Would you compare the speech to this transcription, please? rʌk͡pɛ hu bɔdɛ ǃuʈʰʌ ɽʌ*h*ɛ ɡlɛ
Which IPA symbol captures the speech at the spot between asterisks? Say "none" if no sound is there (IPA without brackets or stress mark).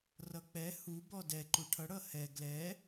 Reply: h